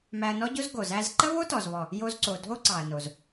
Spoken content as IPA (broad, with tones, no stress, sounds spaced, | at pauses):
m æ˧ ɐ̯ n ɔ˥ ɟ o˥ z ɡ o˩ z æ˧ z ǃ ə˥ β o˥ t ɔ˩ z β ɔ˩ | j o˧ z ǀ o˩ dʱ o˥ ǀ ɑ˩ ɐ̯ n o˩ z